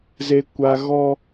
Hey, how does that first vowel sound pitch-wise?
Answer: high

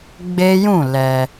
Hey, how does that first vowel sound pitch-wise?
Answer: high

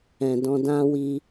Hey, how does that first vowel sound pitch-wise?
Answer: low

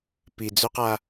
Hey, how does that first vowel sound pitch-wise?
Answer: low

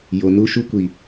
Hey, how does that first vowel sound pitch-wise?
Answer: low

